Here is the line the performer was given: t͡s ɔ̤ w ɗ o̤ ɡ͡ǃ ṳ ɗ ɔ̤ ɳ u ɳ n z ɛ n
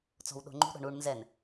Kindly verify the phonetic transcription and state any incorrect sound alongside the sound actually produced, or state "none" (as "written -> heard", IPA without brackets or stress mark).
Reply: ɡ͡ǃ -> ŋ͡ǃ